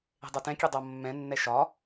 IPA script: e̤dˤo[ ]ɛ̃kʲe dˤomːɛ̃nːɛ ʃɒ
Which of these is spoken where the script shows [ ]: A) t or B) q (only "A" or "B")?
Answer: A